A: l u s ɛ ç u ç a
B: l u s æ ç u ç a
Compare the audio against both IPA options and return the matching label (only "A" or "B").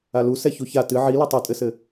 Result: A